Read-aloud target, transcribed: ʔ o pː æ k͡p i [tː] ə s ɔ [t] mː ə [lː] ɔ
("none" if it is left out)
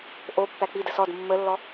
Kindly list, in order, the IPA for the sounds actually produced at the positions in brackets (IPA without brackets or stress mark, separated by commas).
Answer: d, d, lː